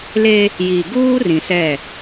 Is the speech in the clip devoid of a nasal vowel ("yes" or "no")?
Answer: no